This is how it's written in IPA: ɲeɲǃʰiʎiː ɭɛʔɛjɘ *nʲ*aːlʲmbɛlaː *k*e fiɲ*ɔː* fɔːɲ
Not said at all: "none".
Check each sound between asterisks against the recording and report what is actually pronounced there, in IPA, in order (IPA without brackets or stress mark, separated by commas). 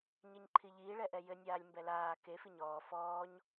nʲ, k, ɔː